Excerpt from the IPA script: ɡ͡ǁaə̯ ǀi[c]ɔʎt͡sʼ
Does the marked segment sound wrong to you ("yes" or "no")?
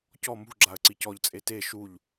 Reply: no